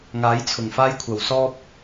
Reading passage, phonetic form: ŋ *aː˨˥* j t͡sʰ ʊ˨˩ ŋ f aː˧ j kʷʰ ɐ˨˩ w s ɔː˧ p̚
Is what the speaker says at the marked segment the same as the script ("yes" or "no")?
yes